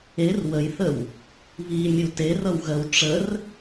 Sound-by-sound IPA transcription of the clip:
e r w ə j θ ə w | β i mʲ u t e r ʌ w ɣ ɜ w ʈ͡ʂ ə r

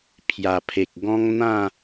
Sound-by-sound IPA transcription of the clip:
pʰ j a˨˩ pʰ e˨ k̚ ɡ ɔ̃˦ ŋ n̪ ã˥˧

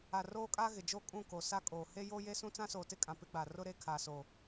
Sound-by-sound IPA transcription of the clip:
a˨ r oː˦ kʼ aː˦ ɣ ɪ˨ d͡ʒ o˦ kʼ ũ˦˨ k o˨ s a˦ kʼ oː˨ h e˦ j o˦ j e˦ s ũ˦ t͡s ã˦ s oː˨ t ɪ˦ kʼ ã˨ p ɪ˦ ɡ͡b a˨ r ʊ˦ ɾ e˦ kʰ aː˨ s oː˨

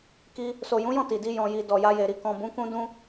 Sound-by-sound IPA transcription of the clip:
k i˧ | s o˨ j ũ˨˦ j ɔ̃˦˨ t i˨ d i˧ j ɔ̃˨ j i˨ d ɔ˨ j a˧ j e˨ ɾ i˧ k ɔ̃˨ b ũ˨˦ k ũ˧ d ũ˧

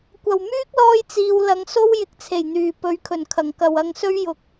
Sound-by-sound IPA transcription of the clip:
kʷ ɐ˨˩ w m yː˥ k̚ l ɔː˧ j t͡s iː˨ w l ɐ˨˧ ŋ s o˥ w j ɪ˨ k̚ t͡sʰ e˨˩ j n̪ yː˨˩ p ɵ˨˧ ɥ kʰ ɵ˨˩ n kʰ ɐ˨˩ ŋ k ɐ˨ w ɐ˧ ŋ s ɵ˥ ɥ j ʊ˨ k̚

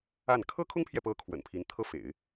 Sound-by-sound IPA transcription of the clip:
a˥˩ n kʰ ɤ˥ kʰ ʊ˥ ŋ pʰ j ɛ˨ p ɤ˧˥ kʰ w ə̰˨˩ n pʰ i˧˥ n t̪ʰ ɤ˥˩ f ḛ˨˩˦ ɪ̯

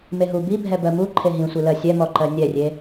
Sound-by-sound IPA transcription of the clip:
m e ɦ u b i bʱ ɛ b ɜ m u ǃʰ e ɦ ĩ sʷ i l ɜ sʲ ɛ m ɔ ǃ ɜ nʲ ɛ rʲ e

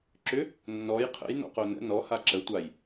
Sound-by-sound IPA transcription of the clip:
ǁ ʏ | nː ɔ j qʰ ə̰ j n ɔ̰ q o n ə̰ n ɔ h a ǁ ə tʷ a j

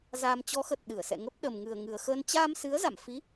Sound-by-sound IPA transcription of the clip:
z aː˧ m t͡ɕ ɔ˨˦ x ə˨˩ t̚ ɗ ɨ˧˩ ə̯ s ɛ̰˧˨ ŋ ə˦˥ p̚ ɗ ə˨˩ m ŋ ɨ˨˩ ə̯ ŋ ɨ˨˩ ə̯ x əː˧ n t͡ɕ aː˧ m s ɨ˨˦ ə̯ z a̰˧˨ m f i˨˦

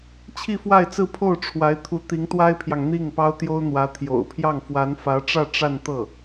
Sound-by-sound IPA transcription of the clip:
t͡ɕʰ i˥˧ f w a˥˧ ɪ̯ t͡s ɹ̩˥˧ pʰ o˥˩ ʊ̯ ʈ͡ʂʰ w a˧˥ ɪ̯ t̪ʰ u˧˥ t̪ i˧˥ ŋ t̪ w a˥ ɪ̯ pʰ j ɑ˨ ŋ n̪ i˥˩ ŋ p ɑ˥ ʊ̯ t̪ j o˥ ʊ̯ n̪ w ä˧˥ t̪ʰ j o̰˨˩ ʊ̯ pʰ j ɑ˥˩ ŋ f w a˧˥ n f ä˧˥ ʈ͡ʂ ä˥˧ ʈ͡ʂ a˥˧ n t̪ ɤ˥˩

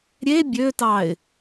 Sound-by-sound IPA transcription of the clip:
ɾʲ e bʲ ø t ɑ ɪ̯

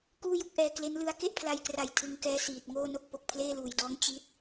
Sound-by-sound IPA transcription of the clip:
k uː˥˩ j u˥˩ k̚ ʔ ɛː˧ k l e˦˥ n l ɯ˦˥ a̯ k e˥˩ ʔ pʰ l a˧ j k r a˨˩ j tʰ ɯ˧ ŋ k ɛː˦˥ s iː˨˩ t̚ ŋ oː˥˩ n o˥˩ k̚ p o˨˩ k̚ pʰ l eː˥˩ l uː˨˩ j d ɔː˦˥ ŋ t͡ɕ i˦˥ t̚

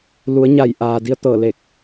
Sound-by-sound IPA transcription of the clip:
l u˩˧ ə̯ ɲ a˧˩ j ʔ aː˩ d i˧˥ ə̯ t̪ ɤː˧˩ l eː˧˩ k̚

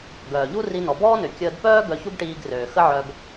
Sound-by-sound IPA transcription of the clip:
ɡ œː˩ ʎ u˥ r i˧ n ɔ˩ b ɔː˥ n ø˩ kʲ əː˧ d p œː˥ ɡ œ˧ ç u˥ ɡ ʈ iː˧ ɡ r øː˩ x ə˥ ʕ œ˧ ɡ

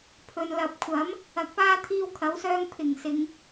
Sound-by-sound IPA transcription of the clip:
pʰ ɵ˧ n l ɐ˨ p̚ kʷʰ ɐ˨˥ m | ɐ˨˥ k̚ p aː˥ t̪ʰ iː˥ w kʰ ɐ˨˥ w s œː˥ ŋ pʰ ɪ˨˩ ŋ s ɪ˨˧ ŋ

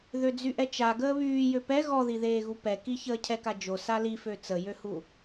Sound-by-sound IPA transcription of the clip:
ð ø d͡z y ʔ ɛ t͡ʃ a ɡ əː β yː j ø p ɛ ɣ ɔ ð i ð eː ɣ u p ɛ k i ç əː cʰ ɛ k a d͡ʒ o s a l i f ø t͡s ə j ø h u

